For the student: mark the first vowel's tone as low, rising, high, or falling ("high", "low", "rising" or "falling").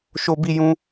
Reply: high